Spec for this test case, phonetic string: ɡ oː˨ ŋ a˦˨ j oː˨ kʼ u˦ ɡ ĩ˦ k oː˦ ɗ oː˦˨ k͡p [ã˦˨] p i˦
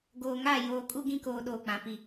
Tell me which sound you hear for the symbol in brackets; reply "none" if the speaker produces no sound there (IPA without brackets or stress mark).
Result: ã˨